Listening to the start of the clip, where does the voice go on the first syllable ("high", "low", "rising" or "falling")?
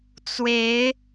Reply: rising